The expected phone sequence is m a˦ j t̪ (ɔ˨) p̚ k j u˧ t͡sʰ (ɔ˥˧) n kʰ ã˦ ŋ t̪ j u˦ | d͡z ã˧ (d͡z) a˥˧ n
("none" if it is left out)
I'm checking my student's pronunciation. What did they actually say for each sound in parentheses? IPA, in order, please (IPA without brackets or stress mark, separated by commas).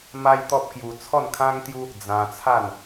ɔ˦, ɔ˥˧, t͡sʰ